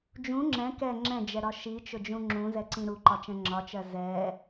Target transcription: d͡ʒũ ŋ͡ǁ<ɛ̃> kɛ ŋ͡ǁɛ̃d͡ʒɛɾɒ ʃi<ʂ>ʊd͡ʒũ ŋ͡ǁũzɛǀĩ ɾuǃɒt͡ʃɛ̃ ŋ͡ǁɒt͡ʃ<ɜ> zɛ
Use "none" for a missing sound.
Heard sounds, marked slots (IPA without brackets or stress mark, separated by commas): ɛ̃, t͡ʃ, ɜ